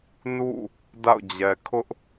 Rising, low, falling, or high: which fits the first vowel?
falling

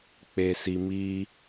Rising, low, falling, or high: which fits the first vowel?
low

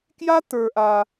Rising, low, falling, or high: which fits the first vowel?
high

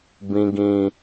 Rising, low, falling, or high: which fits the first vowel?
low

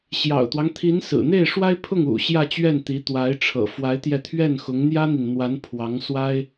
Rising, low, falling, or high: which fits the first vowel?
low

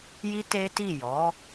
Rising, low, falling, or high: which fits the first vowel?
high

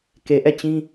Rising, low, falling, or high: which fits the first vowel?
low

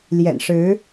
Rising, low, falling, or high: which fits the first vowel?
low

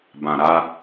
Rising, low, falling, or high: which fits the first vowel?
low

